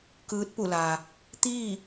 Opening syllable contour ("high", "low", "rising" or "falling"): rising